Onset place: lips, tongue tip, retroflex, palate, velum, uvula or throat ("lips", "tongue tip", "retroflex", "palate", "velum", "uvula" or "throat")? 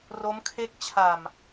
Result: tongue tip